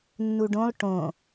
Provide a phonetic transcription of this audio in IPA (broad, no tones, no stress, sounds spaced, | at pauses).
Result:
nː u ɖ õ lˠ ʈ õ